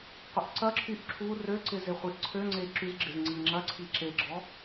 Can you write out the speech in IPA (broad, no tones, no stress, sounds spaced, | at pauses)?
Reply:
qʷ ɪ ʔ ǀ ɐ ǁʰ y ʔ ǁʰ u r ø ǀ ɪ z e χʷ i ʔ ǀʰ ø ŋ͡ǀ e ǁ y z ɡ͡ǁ ɪ z ŋ͡ǀ i ŋ͡ǁ ɐ ǀʰ i ǁ e ɡ͡ǁ ɔ